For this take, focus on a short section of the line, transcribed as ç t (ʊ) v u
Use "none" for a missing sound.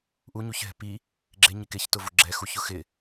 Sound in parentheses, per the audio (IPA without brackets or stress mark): ʊ